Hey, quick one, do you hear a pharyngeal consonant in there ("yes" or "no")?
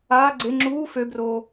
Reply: no